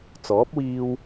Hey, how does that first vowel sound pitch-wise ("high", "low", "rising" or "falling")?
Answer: rising